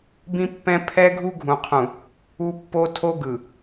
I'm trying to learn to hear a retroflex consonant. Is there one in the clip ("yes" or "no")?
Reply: no